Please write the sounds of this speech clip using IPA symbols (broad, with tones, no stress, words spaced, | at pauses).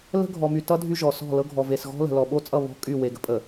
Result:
lə̤˦ɡʱɔ˨my˨tʌ˦ dʱy˦ʒɔ˨sɔ̤˦˨lɤ˦ ɡʱɔ˨ve˨sɣɔ̤˦lə̤˨ lɔ˨ɓo˦t͡sʼʌ˦˨ βɔ̤˦ kʼy˦˨ we˨ɡə̤˦pʼə˨